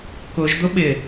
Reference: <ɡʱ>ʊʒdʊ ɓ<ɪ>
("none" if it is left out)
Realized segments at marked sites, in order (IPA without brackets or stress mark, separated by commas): k, ɪ